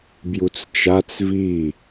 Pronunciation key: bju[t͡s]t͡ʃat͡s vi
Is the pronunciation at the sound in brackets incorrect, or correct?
correct